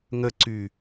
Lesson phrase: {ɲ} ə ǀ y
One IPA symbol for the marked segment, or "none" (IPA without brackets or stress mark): ŋ